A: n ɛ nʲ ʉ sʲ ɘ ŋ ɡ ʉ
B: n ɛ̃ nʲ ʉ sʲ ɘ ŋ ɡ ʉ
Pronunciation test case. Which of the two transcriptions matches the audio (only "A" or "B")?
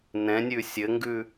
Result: B